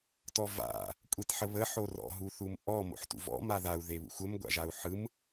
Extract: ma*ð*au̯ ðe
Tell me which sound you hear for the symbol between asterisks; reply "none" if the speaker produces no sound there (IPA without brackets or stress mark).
ð